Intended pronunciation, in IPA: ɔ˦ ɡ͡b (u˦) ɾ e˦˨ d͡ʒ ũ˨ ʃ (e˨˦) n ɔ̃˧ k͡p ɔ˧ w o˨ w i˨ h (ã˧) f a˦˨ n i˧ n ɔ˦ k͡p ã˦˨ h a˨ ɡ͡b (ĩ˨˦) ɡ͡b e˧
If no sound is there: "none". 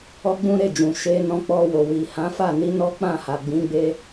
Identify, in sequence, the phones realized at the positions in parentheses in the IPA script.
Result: ũ˦, e˧, ã˨˦, ĩ˨˦

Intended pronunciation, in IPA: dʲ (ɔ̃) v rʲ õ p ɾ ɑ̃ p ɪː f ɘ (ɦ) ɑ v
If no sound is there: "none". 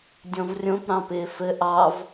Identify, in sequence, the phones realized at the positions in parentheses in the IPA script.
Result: ɔ̃, ʔ

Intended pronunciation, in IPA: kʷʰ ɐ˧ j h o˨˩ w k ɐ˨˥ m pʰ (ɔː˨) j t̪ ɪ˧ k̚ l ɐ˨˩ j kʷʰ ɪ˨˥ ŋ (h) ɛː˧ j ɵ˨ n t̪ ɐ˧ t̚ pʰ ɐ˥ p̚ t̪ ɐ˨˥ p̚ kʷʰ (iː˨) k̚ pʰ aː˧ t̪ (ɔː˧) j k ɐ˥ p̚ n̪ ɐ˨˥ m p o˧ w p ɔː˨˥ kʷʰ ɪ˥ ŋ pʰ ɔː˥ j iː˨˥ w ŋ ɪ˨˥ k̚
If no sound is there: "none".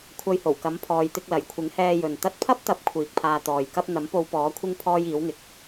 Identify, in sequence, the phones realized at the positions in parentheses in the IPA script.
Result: ɔː˨, h, iː˨, ɔː˨

